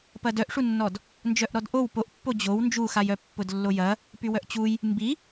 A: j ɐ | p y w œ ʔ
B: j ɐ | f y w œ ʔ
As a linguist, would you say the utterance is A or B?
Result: A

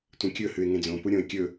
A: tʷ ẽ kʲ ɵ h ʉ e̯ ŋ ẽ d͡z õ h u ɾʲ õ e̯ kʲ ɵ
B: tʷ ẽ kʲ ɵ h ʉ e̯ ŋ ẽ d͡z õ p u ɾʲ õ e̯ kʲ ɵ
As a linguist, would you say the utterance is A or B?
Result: B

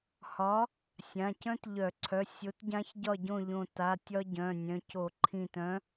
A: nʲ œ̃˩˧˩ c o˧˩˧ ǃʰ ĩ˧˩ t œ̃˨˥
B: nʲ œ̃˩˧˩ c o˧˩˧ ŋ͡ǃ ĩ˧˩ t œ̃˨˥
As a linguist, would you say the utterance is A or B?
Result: A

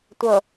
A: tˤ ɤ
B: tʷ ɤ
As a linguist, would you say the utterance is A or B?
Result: B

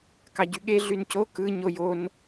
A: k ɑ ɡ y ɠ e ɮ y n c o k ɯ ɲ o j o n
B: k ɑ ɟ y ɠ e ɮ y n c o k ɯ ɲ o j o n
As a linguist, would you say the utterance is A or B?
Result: B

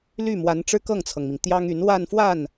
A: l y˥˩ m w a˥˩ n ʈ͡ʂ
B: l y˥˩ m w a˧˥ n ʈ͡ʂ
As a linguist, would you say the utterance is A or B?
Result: B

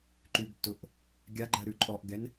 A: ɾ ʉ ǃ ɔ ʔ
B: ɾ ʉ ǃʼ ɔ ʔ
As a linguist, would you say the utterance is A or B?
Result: B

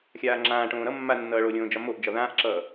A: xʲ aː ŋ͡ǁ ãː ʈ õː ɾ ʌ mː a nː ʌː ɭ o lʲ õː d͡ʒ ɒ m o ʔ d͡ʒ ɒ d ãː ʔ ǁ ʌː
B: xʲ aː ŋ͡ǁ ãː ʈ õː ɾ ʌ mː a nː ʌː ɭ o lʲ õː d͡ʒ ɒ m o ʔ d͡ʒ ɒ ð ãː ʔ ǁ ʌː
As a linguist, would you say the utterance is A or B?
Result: B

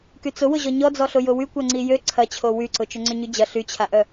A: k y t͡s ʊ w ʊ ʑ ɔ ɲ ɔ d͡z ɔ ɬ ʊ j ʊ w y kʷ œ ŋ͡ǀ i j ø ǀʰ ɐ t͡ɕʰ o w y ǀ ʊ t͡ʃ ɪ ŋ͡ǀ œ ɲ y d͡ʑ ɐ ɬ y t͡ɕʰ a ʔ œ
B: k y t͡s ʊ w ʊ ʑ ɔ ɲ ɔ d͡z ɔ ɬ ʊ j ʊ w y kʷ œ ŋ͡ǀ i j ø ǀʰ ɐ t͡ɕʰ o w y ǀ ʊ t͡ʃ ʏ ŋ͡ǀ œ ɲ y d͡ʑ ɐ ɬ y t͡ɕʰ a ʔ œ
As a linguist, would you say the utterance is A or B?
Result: B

